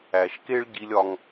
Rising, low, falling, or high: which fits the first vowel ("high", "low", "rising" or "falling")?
low